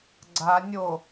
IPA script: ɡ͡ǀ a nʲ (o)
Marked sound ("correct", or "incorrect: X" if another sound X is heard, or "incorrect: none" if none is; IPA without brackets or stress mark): correct